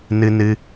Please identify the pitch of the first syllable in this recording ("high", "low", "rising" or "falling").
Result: high